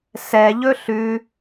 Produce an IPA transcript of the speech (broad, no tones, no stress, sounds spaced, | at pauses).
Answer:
s ɛ ʎ ɵ ɬ ʉ